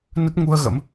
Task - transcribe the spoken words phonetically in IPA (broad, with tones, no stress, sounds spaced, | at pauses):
n ə˦˥ t̚ ŋ u˧ ə̯ ɣ ə̰˧˥ m